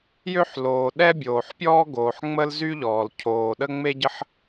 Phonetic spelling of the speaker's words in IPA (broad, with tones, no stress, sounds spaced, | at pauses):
j ø˥ ħ l oː˩ ɗ ɛ˥ bʲ oː˩ ħ pʲ ɔː˥ ɡ oː˩ ħ ŋ͡m ə˥ l z y˥ ʎ ɔː˩ l cʰ oː˩ ɗ ə˥ ŋ͡m e˥ ɟ ə˥ ħ